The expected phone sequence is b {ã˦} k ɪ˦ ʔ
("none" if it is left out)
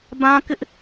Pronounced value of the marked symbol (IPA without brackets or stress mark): ã˦